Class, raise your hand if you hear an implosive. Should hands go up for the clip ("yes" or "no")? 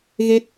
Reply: no